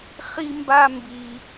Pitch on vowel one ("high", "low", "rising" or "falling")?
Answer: high